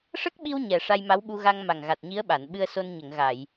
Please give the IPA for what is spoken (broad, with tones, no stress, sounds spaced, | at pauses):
ʂ ə˦˥ k̚ ɓ i˧ w ɲ ɛ˨˩ ʂ a˧ j m a˧˥ w ɓ u˧ ɣ a˧ ŋ m a˨˩ ŋ ɣ a˨˩ t̚ ɲ i˧˥ ə̯ ɓ a˨˩˨ n ɓ ɨ˧ ə̯ s o˧ n ɲ ə˨˩˨ ŋ ɣ a˨˩˨ j